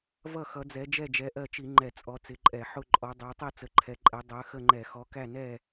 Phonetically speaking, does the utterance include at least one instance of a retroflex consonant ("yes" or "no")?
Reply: no